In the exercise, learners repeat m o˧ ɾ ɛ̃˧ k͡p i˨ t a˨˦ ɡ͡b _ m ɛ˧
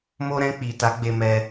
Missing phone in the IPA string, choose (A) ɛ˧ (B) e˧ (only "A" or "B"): B